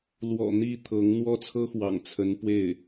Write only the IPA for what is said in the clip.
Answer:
lwɔ̰˨˩ n̪i˥˩t̪ʰɤ˧˥ŋn̪wɔ˥t͡sʰɤ˥ xwɑ̰˨˩ŋt͡sʰə˧˥n pwe˥˩ɪ̯

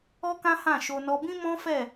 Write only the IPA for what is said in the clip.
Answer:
ɔ˦kã˦hã˦˨ʃo˧ nɔ˧bĩ˦ mɔ̃˦fɛ˦˨

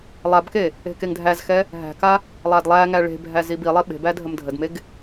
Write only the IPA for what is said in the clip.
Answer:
lˠabke | e̤keŋdʱæzxɛ | ɦæ̤ka | lˠadlˠæŋæ ɭe̤bʱæ zibilˠe ɓe̤bæ dʱəmdʱədmeɡ

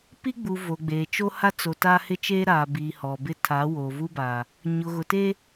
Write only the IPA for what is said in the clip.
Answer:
pi˦ɡ͡bu˨ vo˨ɡ͡beː˨t͡ʃo˦ ha˦ t͡so˨ta˦ hɪ˦t͡ʃeː˦ɾaː˨biː˨ hɔ˨bɪ˦ tʰa˨˦wo˨vu˦baː˨ | ɲʊ˨ɣʊ˨te˦

